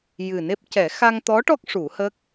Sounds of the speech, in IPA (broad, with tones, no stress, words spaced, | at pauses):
jɨ˨˩ne˦˥p̚ cɛ˨˩˦ xa˧ŋt̪ɔ˧˥ʈɔ˦˥k̚ ʂu˨˩˦hə˦˥k̚